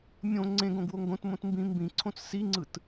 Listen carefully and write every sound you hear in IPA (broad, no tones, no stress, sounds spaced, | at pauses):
mʲ õ ŋ͡ǀ ẽ ɡ õ ɡ w o ŋ ɡ õ t m õ t m b ĩ m b ĩ ǀʰ õ t͡s s i ŋ͡ǀ ɯ t